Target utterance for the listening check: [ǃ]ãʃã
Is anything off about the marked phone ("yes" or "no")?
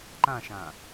no